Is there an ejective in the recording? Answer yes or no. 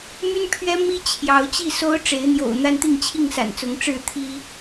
no